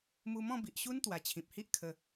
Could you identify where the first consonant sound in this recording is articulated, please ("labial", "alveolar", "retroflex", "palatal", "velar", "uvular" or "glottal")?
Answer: labial